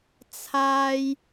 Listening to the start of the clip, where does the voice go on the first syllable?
low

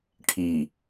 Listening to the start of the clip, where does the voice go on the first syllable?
low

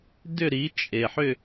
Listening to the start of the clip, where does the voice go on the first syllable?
falling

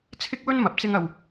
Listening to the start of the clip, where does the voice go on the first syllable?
high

